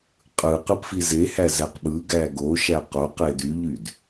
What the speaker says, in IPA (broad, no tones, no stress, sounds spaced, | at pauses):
qʼ ɯ q ɯ p f i z e h æ z æ q ɓ ɯ ɡ æ ɡ o ʃ æ q o q e d y ʎ y d